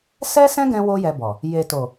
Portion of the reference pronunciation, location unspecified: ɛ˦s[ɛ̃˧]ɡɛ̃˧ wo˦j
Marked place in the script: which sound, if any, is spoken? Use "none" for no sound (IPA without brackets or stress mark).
ɛ̃˦